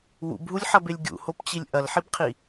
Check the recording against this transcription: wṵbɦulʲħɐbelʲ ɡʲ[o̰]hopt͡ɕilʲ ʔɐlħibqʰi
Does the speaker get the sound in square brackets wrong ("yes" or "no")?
yes